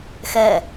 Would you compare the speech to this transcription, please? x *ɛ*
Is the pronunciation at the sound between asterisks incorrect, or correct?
correct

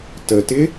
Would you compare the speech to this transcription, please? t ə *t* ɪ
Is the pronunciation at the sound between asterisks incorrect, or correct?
correct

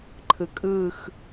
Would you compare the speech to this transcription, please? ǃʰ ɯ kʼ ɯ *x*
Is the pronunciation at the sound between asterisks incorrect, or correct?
correct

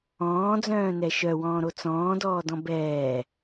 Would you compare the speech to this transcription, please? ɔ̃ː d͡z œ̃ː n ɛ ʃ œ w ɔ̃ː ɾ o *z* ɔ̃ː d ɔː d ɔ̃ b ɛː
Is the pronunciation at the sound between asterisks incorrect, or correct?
incorrect: t͡s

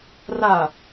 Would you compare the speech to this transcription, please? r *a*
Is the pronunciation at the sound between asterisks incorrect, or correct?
correct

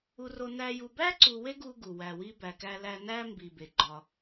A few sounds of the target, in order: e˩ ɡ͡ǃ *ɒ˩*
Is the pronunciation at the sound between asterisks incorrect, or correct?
correct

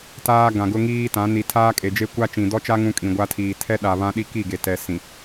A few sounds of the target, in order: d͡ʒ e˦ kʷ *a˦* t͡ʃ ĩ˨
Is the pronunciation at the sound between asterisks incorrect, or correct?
correct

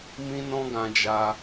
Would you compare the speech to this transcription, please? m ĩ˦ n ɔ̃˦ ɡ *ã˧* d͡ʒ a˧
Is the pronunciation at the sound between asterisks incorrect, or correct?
correct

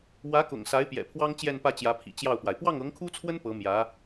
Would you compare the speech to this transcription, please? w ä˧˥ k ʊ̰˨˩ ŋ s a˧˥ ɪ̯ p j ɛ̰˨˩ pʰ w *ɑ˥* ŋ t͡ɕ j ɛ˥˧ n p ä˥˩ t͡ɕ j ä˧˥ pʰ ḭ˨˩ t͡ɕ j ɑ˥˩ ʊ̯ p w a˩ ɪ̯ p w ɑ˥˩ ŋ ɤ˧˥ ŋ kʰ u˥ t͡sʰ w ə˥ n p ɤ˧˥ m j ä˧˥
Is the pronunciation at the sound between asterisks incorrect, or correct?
correct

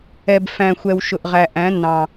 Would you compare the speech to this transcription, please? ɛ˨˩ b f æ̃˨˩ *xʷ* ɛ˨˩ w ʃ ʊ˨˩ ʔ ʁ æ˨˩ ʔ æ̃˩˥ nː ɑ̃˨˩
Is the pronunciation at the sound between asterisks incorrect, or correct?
correct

